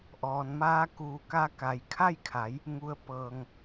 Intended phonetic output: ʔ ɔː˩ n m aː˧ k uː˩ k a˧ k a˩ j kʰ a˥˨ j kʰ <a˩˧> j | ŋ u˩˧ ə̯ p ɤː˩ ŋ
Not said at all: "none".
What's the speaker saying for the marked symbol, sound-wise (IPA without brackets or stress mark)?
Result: a˩˧